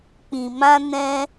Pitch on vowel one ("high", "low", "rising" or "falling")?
low